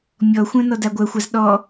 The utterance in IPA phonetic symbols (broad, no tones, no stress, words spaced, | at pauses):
mʲɔxʷœ̃ nɔdaɡʷœxʷaz ɗɔ